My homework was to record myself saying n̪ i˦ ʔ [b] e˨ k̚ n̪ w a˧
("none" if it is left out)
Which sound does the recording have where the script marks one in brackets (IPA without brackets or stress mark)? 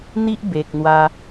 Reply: b